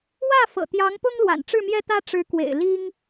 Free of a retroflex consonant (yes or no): no